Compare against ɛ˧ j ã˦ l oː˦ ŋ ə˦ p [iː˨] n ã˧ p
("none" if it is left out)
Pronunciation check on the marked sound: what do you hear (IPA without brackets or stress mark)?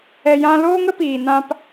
iː˨